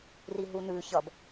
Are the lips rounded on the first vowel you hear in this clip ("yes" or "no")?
no